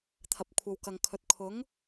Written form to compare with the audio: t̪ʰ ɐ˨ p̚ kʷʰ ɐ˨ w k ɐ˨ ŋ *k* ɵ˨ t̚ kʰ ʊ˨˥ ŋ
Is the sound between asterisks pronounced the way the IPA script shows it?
no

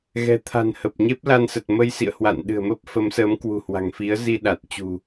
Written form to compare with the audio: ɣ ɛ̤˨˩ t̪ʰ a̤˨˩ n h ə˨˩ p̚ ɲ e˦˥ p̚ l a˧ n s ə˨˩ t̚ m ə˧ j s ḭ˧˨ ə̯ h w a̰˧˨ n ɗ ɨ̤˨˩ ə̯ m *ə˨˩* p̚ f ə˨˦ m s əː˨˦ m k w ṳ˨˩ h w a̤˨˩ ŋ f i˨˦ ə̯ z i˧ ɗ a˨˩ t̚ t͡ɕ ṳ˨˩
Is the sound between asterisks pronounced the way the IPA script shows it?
no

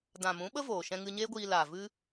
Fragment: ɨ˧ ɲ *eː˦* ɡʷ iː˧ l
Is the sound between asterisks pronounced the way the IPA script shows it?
yes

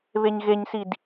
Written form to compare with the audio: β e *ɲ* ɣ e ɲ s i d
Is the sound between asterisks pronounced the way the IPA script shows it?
yes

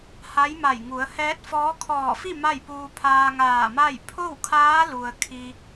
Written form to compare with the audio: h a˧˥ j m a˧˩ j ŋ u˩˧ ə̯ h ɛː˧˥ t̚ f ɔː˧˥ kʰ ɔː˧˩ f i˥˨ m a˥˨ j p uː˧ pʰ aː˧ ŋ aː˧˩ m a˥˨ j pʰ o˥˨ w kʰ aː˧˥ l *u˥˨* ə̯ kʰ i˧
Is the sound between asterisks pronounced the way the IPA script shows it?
no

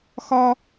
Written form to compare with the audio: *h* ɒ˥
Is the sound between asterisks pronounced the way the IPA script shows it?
no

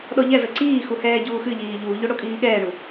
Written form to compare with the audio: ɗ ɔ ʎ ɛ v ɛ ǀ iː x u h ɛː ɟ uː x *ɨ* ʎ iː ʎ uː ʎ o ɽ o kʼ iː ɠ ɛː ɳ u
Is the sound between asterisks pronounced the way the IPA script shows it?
yes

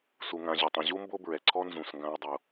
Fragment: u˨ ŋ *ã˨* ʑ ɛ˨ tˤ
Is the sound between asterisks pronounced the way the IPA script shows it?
yes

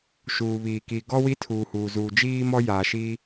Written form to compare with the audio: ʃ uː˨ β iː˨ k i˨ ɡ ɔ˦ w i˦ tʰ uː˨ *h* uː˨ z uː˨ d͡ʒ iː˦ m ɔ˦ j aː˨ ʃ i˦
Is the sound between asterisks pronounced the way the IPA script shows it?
yes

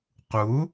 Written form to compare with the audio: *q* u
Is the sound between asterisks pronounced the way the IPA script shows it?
yes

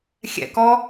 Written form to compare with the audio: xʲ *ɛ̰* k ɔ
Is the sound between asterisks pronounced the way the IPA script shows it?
yes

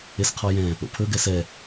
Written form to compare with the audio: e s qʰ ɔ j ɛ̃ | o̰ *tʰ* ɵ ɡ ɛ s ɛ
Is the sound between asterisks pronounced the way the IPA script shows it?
no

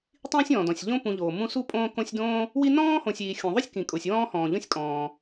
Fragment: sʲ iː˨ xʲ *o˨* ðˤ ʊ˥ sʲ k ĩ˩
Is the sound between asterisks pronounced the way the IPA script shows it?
no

